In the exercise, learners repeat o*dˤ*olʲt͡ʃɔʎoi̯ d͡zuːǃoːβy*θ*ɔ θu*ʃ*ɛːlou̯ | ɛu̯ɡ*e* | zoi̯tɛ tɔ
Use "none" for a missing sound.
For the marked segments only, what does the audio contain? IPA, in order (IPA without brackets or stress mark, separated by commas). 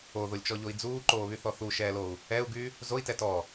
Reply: ð, θ, ʃ, y